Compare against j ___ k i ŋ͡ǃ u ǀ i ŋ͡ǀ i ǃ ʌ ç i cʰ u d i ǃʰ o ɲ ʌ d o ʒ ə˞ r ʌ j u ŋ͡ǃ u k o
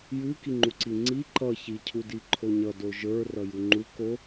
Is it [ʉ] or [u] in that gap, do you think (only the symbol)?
ʉ